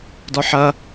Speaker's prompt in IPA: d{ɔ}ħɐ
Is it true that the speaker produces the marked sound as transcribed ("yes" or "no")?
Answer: yes